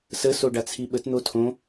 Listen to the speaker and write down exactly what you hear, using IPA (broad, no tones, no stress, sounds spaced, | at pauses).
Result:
s ə s o ɖ a t͡sʰ i ɓ ə t n̪ o tʰ õ